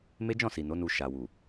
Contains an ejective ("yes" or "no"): no